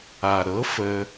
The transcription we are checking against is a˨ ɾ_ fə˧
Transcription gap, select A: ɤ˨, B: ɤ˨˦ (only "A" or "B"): B